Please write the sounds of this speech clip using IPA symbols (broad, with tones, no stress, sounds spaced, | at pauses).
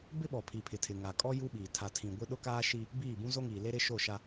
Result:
b ɪ˦ ɓ ɔ˨ pʰ i˨ pʰ ɪ˨ tʰ ɪ˨ ŋ a˨ kʼ ɔ˦ j u˦ ɓ iː˨ tʰ a˨ tʰ ĩ˨ ɡʷ ɪ˦ ɗ ʊ˦ k aː˦ ʃ i˦ | b iː˦˨ b ũ˦ z o˦ ŋ iː˨ l e˦ ɾ ɪ˦ ʃ o˦˨ ʃ a˦